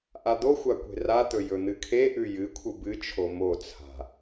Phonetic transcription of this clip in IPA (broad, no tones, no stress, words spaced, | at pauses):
ʔad̪oxʷa kʷe̤rat̪ɵ jɵn̪ɨkʰeʔʉ jɨkʷʰɨ bɨt͡ʃʰo mot͡sʰa̤